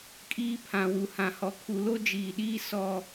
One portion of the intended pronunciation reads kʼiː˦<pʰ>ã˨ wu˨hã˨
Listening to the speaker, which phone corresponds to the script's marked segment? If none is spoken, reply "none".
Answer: pʰ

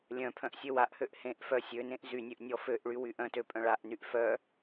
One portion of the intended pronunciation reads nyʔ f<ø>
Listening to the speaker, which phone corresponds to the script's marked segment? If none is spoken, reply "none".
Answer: œ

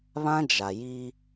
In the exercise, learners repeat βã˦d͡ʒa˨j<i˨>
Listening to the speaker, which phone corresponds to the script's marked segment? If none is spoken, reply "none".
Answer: i˦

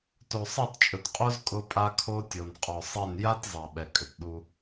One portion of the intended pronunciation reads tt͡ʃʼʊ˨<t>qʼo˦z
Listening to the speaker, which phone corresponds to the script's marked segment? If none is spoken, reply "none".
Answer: t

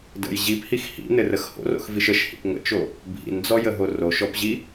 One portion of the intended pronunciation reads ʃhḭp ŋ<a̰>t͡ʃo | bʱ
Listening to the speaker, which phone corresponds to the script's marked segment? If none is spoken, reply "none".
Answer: ə̰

